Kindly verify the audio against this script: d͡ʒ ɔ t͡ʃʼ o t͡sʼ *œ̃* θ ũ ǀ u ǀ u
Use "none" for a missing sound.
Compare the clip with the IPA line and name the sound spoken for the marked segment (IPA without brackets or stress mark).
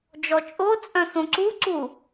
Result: œ̃